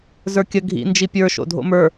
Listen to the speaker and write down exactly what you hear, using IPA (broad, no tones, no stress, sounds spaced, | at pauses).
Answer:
z ə˞ kʲ ə ɡʱ ḭ n d͡ʒ i pʲ ə˞ ʃ o̰ dʱ o̰ m ə˞